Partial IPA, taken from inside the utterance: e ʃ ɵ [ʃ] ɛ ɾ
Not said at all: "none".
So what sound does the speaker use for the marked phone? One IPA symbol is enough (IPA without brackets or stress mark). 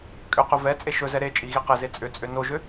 z